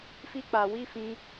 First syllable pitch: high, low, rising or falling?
high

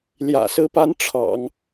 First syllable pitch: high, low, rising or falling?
low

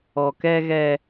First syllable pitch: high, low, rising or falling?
low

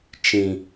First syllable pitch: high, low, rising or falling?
low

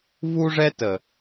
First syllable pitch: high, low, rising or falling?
high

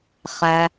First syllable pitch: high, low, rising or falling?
low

